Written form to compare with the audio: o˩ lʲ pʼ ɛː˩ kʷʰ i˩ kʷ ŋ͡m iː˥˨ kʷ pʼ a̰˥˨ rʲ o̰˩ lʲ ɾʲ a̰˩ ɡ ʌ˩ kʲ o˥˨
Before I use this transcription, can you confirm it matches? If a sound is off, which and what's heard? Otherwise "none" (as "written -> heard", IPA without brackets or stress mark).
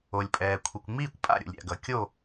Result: rʲ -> ɾʲ